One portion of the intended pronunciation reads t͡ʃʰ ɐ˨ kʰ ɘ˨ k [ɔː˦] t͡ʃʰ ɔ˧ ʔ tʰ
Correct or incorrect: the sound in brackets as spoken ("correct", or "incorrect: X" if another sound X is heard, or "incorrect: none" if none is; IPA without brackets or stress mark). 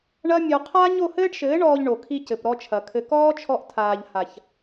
correct